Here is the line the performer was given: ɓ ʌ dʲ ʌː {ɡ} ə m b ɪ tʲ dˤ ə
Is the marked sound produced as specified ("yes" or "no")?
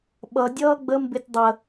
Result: no